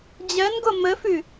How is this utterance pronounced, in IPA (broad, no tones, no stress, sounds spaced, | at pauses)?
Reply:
d͡ʑ ɜ n ɡ o m ə f ʉ